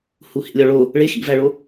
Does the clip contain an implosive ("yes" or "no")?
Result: no